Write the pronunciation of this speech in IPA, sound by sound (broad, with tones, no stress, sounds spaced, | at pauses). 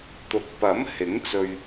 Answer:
t̪ ʊ˨ k̚ p ɐ˨˥ m h ɪ˨˥ ŋ t͡s ɵ˧ ɥ